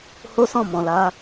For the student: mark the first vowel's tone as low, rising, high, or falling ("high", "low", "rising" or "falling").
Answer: high